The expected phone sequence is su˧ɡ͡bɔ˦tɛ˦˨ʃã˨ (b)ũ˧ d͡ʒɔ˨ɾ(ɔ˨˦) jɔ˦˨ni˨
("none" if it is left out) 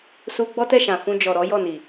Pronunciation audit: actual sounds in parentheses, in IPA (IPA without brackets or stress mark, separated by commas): f, ɔ˨˦